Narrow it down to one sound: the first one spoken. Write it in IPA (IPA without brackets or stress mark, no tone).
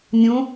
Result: nʲ